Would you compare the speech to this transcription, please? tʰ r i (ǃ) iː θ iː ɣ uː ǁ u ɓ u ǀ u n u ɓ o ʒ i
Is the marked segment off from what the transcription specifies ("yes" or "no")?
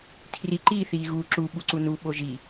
no